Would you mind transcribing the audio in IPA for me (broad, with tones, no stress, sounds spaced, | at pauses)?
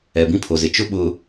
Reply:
ɛ˨ b ĩ˦ pʰ o˨ z ɪ˨ t͡ʃ ʊ˦ ɓ ʊ˨